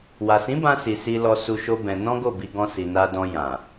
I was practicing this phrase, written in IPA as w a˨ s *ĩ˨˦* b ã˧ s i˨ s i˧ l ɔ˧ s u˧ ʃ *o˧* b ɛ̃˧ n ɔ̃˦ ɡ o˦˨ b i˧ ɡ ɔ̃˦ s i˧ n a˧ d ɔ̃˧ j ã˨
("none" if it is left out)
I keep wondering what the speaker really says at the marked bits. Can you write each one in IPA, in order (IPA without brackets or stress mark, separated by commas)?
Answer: ĩ˨˦, o˦